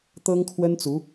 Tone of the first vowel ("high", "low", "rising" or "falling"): high